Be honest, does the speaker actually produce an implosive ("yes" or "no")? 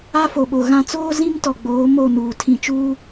yes